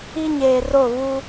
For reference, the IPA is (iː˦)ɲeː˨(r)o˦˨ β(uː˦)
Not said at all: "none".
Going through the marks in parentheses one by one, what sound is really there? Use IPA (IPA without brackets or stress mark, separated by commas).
i˦, r, u˦